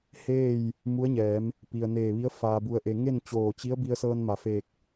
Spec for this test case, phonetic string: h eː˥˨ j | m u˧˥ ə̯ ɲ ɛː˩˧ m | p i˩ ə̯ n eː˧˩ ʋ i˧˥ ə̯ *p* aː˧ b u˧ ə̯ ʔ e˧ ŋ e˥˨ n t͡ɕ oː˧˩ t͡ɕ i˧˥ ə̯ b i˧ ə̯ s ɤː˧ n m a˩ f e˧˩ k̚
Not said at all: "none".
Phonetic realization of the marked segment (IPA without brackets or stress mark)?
f